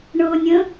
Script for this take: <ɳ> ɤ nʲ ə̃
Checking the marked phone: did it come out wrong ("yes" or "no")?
no